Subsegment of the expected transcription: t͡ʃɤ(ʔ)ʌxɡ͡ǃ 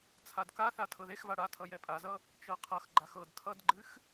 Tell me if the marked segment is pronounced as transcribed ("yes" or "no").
no